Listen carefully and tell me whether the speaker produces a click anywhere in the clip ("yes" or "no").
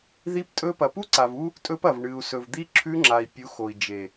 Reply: yes